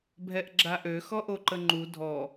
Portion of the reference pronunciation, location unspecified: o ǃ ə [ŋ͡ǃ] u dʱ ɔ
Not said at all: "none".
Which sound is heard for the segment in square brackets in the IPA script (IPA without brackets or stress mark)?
ŋ͡ǃ